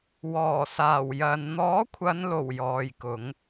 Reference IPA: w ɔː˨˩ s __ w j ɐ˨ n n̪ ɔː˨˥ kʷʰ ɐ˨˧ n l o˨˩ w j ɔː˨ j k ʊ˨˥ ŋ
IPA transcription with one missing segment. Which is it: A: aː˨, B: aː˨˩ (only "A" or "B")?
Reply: B